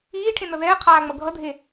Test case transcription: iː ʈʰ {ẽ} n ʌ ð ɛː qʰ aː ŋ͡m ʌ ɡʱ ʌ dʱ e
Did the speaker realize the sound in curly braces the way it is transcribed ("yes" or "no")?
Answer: yes